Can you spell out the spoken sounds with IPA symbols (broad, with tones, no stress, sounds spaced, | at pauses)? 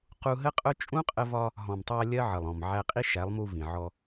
q u˧ ɦ ə˦ qʼ ʊ˦ t͡ʃʼ ũ˦ qʼ ə˧ v ɒ˧ | ɦ ɔ̃˨ m tˤ æ˧ lʲ ɜ˦ ʕ ə˨ lˠ ɔ̃˨ m ʕ æ˧ qʼ i˦ ʃ æ˨˦ lˠ m u˧ v ĩ˨ ʕ ɔ˧